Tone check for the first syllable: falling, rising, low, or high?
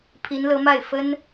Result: rising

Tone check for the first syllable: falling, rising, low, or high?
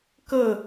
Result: falling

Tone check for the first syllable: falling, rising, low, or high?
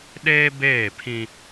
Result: high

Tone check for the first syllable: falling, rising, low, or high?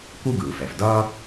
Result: high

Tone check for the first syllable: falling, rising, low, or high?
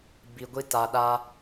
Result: low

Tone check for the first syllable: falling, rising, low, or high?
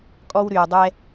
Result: high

